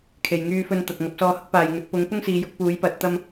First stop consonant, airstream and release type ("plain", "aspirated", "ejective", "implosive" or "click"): aspirated